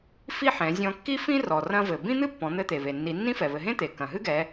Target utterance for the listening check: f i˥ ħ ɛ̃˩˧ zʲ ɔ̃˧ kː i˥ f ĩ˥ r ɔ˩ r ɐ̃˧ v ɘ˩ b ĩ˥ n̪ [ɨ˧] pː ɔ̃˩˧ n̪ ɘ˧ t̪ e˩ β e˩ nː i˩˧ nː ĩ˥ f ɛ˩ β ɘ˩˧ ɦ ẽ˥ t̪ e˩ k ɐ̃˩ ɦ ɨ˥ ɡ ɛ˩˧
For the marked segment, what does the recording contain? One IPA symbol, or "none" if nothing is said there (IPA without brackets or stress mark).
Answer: ɨ˥